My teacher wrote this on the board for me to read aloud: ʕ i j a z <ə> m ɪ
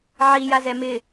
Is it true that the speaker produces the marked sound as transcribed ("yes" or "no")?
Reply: no